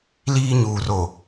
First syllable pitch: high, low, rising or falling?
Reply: high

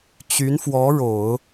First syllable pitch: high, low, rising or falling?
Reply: rising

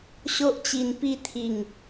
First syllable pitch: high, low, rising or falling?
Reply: high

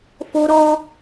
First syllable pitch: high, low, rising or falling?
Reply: high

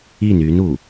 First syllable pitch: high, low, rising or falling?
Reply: falling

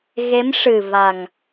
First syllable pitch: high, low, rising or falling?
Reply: rising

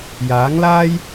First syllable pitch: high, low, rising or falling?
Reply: rising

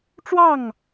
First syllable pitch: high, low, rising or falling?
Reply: falling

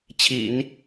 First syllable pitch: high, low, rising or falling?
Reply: low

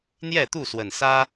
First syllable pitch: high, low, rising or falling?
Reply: falling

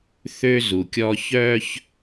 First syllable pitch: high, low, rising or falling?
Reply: high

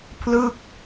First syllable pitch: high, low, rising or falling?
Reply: falling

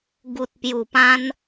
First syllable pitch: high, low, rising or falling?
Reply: low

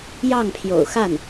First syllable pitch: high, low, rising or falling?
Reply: falling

